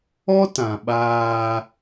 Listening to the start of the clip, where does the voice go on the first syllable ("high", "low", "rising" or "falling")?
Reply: high